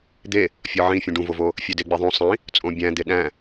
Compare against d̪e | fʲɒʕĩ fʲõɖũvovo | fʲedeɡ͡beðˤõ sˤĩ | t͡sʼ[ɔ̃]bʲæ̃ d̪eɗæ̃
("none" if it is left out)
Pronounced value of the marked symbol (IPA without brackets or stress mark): õ